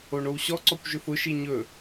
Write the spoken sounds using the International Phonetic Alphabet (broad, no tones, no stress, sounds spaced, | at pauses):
o ɳ o w ɕ ɔ ǀ ɔ kʷ ʒ ɵ f ʊ ʃ i ɲ ɵ